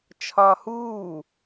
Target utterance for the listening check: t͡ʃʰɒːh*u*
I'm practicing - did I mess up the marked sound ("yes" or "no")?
yes